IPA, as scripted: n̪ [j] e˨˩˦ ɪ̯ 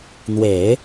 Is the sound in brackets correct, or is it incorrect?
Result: incorrect